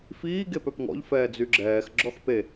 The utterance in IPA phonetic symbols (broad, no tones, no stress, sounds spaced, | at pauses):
f iː ɡ e p œ p ŋ ɔ̰ ʎ f ɛː d͡z y ɡ͡ǁ ɛː x ɡ͡ǁ ɔ x p e